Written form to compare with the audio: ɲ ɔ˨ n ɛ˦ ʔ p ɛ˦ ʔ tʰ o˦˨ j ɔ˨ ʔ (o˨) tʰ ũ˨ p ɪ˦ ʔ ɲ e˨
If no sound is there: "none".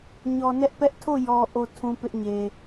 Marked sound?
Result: o˨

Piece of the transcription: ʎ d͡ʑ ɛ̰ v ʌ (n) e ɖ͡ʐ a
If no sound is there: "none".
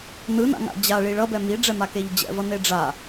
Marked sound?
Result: n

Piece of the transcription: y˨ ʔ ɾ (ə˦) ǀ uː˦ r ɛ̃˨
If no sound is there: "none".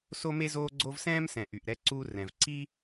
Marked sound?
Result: ɛ˦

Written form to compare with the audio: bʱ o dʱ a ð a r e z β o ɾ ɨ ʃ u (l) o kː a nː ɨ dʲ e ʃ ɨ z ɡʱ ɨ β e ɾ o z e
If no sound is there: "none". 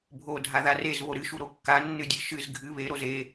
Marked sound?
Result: ɾ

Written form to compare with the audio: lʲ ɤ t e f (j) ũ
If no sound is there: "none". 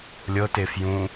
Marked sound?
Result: j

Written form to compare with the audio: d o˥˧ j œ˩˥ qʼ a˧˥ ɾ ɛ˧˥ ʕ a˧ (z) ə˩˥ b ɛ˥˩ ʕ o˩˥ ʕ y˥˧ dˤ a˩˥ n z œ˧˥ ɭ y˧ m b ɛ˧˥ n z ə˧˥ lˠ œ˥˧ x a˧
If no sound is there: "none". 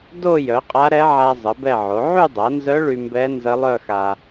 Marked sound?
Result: zˤ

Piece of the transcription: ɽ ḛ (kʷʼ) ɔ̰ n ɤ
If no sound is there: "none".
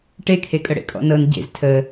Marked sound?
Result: kʼ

